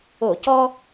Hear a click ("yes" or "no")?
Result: no